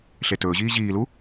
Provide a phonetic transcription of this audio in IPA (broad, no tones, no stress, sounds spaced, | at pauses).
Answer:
ɬ e t ɵː ʑ iː ʑ iː l u